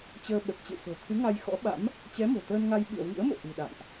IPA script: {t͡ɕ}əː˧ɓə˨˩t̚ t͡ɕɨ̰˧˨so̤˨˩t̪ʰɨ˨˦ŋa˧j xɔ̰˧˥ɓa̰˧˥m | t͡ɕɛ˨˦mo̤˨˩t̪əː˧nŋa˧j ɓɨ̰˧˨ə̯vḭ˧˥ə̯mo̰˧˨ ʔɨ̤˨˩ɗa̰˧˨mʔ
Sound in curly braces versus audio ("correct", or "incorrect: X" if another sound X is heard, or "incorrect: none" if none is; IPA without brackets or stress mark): correct